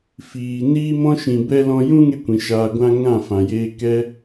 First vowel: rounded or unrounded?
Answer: unrounded